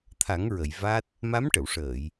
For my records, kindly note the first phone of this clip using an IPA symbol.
t̪ʰ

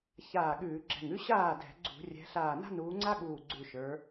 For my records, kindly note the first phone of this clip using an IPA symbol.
ç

